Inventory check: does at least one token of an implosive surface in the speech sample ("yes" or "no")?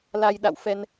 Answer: yes